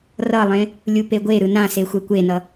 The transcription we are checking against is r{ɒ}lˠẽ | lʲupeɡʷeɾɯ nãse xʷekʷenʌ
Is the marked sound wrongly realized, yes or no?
yes